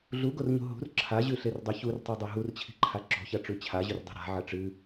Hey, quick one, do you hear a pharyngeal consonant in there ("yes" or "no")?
yes